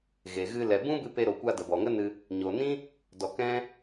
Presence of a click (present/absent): absent